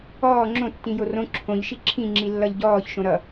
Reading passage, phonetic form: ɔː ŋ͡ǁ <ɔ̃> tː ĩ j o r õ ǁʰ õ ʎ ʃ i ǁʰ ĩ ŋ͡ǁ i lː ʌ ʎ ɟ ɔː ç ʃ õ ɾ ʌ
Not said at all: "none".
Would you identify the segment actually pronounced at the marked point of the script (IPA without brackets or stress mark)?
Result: õ